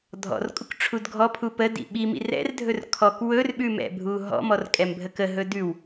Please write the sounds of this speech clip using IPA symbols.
dʱ ɔ̰ r kʼ u k ʈ͡ʂʰ u d ɡʱ ɔ pʰ u p ə d ḭ ɓ i m ḭ r ɛ̰ r dʱ ɵ r kʰ ɔ k w ɵ r ɓ ʉ m ɛ̰ bʱ u ɦ ɔ̰ m ɔ r kʼ ɛ m bʱ ə k ə ɦ ɵ d ʉ w

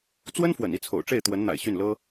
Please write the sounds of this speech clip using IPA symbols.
t͡s w ə˥ n f w ə̰˨˩ n i˥˩ t͡sʰ o̰˨˩ ʊ̯ ʈ͡ʂ e˥˩ ɪ̯ t̪ w ə˧˥ n n̪ a̰˨˩ ɪ̯ ɕ y˥˩ n l ɤ˥

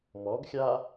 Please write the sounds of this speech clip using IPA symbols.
m ɔ ɡ xʲ a

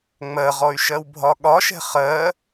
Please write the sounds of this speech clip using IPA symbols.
ŋ͡m ɜ ʁ ɔ y̯ ʃ ɜ w bʱ ɒ ɠ ɒ ʃ ɛ̤ χ ɜ

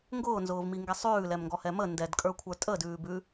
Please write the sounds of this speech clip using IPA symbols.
ŋ ɡ ʊː n z ʊː v m i ŋ ɡ ɛ sˤ ʉː l ɛ m ŋ ɡ ɔ h ɛ m ə n d ɛ d kʼ ə˞ kʷʰ ə˞ tʼ ə d ʉː b ʉ

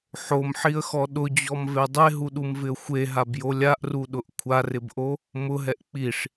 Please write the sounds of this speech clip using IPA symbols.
ħ o m ħ i ə̯ x ɔ ɗ ʊ d͡ʑ ɔ m v e dˤ e ɦ u ɗ u m v ɪ ə̯ xʷ e ɦ a b j o lʲ a ʔ r u ɗ ʊ ʔ kʷʰ a r ɪ b ʔ o | m ʊ ɦ ɛ ʔ k͡p i ʂ

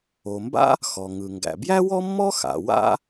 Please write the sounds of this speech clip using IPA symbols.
o˩ m b a̰˥ | x ɔ˩ ŋ ɯ˩ ŋ ɡ æ̰˩ b j æ˥ w ɔ˥ mː ɔ˥ x a̰˩ w a̰˥

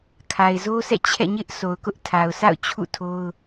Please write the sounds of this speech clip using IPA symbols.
kʰ a˨ ɪ̯ z o˦ s ɛ̰˦˨ t͡ɕʰ ɛ̰˦˨ ɲ ɪ˦ ʔ s o˨ ʊ̯ k ʊ˦ ʔ tʰ a˨ ʊ̯ s a̰˦˨ ʊ̯ t͡ɕʰ ṵ˦˨ tʰ o˦ ʊ̯

